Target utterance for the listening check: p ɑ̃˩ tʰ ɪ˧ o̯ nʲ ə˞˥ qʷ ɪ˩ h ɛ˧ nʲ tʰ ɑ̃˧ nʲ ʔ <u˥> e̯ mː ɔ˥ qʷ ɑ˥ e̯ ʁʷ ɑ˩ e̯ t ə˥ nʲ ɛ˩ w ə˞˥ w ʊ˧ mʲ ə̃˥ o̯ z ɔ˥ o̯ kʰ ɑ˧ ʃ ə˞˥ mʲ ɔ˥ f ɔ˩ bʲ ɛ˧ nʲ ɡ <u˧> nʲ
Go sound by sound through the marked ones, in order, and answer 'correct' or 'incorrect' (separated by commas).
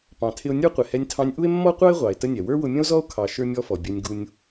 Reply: correct, correct